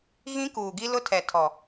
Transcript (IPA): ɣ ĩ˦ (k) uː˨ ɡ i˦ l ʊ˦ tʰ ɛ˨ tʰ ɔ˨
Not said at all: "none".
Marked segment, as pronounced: k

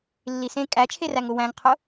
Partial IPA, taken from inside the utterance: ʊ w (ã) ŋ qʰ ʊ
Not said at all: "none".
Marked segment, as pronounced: æ̃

